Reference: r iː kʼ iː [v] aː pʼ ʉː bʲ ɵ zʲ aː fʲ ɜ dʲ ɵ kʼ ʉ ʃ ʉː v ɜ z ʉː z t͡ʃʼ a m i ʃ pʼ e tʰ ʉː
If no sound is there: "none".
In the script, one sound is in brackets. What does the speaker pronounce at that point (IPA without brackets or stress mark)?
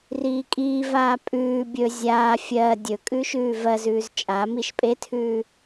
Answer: v